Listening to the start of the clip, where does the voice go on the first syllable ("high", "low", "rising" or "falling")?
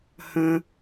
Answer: low